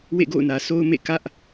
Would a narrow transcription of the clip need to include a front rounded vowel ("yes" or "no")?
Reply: no